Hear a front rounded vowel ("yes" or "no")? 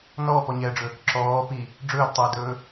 no